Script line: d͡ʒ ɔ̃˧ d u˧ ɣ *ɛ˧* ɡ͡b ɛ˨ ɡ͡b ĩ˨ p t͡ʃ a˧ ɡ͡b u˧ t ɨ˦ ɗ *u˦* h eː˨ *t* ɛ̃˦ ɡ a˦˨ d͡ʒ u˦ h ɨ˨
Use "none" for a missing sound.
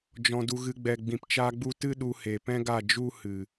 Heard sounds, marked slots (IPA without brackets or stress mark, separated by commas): ɨ˧, u˧, p